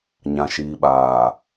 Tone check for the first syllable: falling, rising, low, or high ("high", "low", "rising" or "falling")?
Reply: low